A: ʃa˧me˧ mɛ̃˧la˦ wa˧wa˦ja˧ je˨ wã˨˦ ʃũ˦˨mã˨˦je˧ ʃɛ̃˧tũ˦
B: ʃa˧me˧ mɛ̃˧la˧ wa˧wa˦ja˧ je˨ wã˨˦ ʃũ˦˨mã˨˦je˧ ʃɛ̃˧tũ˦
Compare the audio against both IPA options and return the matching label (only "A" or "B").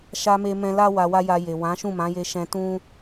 A